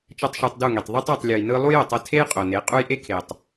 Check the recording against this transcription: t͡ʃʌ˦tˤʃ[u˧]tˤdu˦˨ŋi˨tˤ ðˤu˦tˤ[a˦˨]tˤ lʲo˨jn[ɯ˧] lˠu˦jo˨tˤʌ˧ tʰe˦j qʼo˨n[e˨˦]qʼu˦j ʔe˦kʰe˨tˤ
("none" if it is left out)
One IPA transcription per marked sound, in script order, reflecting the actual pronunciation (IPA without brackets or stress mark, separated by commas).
u˧, a˦˨, ɯ˧, e˨˦